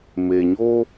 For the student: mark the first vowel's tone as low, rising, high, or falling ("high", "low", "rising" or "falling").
low